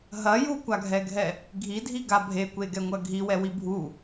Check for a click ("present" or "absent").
absent